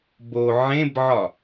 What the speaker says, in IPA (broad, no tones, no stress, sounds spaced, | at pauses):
b o ʕ ẽ b ʕ ɒ